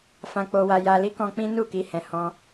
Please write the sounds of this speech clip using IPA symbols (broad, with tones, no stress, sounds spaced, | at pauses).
f ã˧ k͡p o˧ w a˧ j a˧ l i˦ k ɔ̃˧ k͡p ĩ˦ n u˦˨ k i˧ h ɛ̃˨ h ɔ̃˧